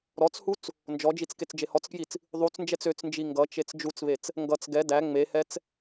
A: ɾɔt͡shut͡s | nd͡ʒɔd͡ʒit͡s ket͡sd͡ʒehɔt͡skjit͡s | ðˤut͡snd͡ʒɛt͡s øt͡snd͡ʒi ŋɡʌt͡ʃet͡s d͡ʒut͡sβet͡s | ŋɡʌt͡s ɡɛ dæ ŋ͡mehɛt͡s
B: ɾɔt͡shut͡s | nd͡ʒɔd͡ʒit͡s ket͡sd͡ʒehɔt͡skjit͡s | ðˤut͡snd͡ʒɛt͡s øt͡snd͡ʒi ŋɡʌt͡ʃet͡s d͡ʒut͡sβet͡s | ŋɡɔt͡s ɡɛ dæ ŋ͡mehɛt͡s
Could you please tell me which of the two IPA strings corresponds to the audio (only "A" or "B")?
A